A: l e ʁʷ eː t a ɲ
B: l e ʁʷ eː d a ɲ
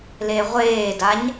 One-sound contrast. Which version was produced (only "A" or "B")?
B